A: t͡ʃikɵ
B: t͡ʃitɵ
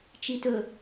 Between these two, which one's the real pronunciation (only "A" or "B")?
B